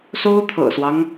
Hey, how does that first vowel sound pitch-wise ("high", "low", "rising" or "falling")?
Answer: high